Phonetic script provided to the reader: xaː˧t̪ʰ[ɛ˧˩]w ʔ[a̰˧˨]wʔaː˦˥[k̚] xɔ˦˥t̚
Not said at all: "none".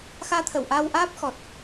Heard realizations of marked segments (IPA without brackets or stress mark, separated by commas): ə˧˩, a˧, p̚